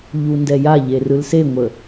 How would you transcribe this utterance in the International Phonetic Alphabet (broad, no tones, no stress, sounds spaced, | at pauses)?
ʎ u n d ɛ j a ʎ e r ɯ l s e ŋʷ ə